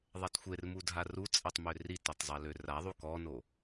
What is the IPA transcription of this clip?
ðˤ ɛ t xʷ e r m u dʱ a r u t͡sʼ ɛ tˤ m ø r i t ø tˤ zˤ ɛ l ø r a ðˤ u k ɔ n o

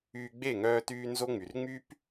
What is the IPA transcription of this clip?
yː˧ ɡ͡b e˦˨ ŋ œː˧ t yː˧ n z o˦ ŋ͡m y˨ r ŋ͡m y˦ p

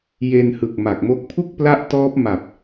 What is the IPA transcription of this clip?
j e˧ n h ɯ˨˩ k̚ m a˨˩ k̚ m o˦˥ k̚ pʰ u˥˩ k̚ p l a˦˥ ʔ t ɔː˦˥ p̚ m a˨˩ p̚

